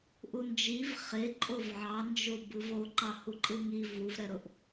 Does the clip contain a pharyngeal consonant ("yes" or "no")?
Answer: yes